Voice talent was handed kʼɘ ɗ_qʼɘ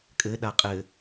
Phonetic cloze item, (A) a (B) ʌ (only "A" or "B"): A